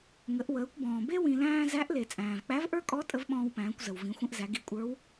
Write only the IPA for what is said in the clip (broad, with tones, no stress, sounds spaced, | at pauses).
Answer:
ŋ ə˩˧ ʔ w əː˩˧ kʷ b ɔ̃ː˩ b e˥ w ĩ˧ l æ̃ː˥ z æ˧˥ ʔ l e˩ t͡sʼ æ̃ː˩ v k͡p æ˧˥ v ʔ ə˞˥ kʼ ɔ˧˥ tʼ ə˧˥ v ɓ ɔ̃ː˧ w p æ̃ː˩˧ kʷ z ə˩ w v ĩ˩˧ xʷ ə̃˧ ʔ z æ˩˧ ɡ i˩˧ kʷʼ ə˞˧˥ w